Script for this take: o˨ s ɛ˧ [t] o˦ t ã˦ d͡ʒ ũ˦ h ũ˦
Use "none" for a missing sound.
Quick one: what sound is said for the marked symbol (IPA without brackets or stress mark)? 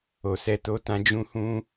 t